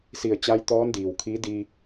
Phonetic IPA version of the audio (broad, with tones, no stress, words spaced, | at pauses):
si˧˩ə̯ t͡ɕa˧˥jt̪ɔː˧˥ndiː˩wkʰiː˧˥ diː˧